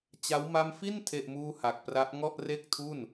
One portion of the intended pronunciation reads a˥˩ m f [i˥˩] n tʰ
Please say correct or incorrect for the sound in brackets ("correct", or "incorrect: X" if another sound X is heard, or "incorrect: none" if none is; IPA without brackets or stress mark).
correct